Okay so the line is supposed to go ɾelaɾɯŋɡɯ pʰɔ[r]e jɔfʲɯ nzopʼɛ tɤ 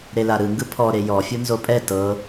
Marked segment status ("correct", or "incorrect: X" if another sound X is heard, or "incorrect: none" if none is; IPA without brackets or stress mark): incorrect: ɾ